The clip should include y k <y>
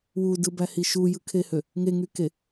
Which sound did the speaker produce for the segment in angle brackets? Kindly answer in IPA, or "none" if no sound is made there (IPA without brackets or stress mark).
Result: e